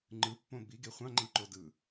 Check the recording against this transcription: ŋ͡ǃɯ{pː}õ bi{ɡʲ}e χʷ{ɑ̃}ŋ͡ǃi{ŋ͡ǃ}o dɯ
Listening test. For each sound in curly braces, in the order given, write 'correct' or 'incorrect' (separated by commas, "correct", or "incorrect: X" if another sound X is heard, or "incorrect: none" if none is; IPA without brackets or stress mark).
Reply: correct, incorrect: ɡ, correct, incorrect: ǃ